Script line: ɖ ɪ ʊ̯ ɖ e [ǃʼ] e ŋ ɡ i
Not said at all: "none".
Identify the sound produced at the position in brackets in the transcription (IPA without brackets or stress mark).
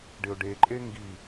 ǃʼ